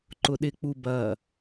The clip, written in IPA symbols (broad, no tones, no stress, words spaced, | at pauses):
ǃʊɗɪk͡pu bɐ